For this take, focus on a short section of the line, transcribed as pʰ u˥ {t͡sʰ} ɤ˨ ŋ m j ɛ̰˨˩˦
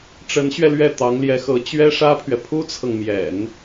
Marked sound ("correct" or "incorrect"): correct